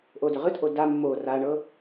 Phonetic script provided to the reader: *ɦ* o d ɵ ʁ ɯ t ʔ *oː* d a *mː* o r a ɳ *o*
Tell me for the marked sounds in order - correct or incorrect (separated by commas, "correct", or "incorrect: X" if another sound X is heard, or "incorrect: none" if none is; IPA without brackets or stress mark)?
incorrect: ʔ, incorrect: o, correct, incorrect: ɤ